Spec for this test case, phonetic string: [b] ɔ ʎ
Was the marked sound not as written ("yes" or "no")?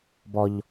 no